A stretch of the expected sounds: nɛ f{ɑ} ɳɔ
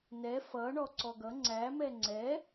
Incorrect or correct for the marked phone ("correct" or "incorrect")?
incorrect